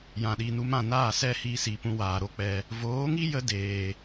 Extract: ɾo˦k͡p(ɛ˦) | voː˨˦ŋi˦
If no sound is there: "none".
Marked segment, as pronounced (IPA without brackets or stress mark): ɛ˧